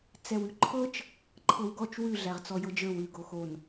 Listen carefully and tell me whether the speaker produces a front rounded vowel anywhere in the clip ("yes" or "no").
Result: no